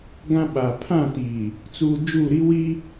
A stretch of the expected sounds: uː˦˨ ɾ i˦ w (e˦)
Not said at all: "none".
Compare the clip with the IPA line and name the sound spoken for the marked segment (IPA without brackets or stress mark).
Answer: i˦